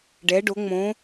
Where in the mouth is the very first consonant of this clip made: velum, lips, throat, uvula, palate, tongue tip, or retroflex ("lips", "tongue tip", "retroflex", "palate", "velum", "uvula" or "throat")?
retroflex